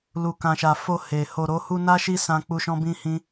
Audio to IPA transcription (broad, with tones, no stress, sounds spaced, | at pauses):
l u˧ k ã˧ ʃ a˧ f o˧ h e˧ h o˧ ɾ o˦ h u˦ n a˦ ʃ i˦ s ã˦ k͡p u˦ ʃ ɔ̃˦ b ĩ˦ h ĩ˦